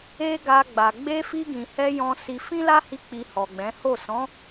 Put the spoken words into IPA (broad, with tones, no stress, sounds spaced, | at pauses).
e˦ ɡ a˧ ɡ͡b a˨ ɡ͡b e˧ f i˧ ɡ ĩ˨ h ɛ˧ j ɔ̃˧ s i˧ f ĩ˦ l a˦ h i˧ k͡p i˧ h ɔ˨ ɡ͡b ɛ̃˨˦ h o˦˨ s ɔ̃˨˦